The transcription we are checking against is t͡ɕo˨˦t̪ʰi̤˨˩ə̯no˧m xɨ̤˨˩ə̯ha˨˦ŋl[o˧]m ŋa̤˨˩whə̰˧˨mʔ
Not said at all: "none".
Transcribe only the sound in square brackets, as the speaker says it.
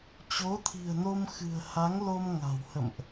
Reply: o˧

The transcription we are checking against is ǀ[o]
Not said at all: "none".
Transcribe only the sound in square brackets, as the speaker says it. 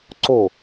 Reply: o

